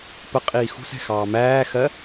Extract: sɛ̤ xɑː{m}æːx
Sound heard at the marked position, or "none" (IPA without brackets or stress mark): m